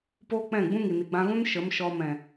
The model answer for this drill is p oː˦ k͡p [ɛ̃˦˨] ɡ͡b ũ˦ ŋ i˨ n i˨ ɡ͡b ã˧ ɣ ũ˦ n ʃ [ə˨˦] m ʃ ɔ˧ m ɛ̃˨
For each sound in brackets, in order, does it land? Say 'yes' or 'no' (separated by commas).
yes, yes